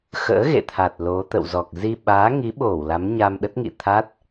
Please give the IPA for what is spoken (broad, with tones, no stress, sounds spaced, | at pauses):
x ə̰ː˧˥ ɣ ḛ˧˨ t̪ʰ a˨˩ t̚ l o˨˦ t̪ ə̰˧˨ w z ɔ˨˩ k̚ z i˧ ɓ aː˨˦ ŋ i˨˦ ɓ o˧˩ w l a˨˦ m ɲ a˧ m ɗ ə˦˥ t̚ ŋ ḭ˧˨ t̪ʰ a˦˥ t̚